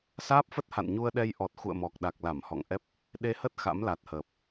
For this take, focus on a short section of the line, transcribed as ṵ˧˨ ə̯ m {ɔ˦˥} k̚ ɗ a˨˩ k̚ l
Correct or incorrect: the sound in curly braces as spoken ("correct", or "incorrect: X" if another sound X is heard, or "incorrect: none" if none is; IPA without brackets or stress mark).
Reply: incorrect: ɔ˨˩